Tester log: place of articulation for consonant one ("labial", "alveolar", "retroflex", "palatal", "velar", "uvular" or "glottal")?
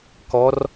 velar